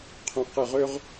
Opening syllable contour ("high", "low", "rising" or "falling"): low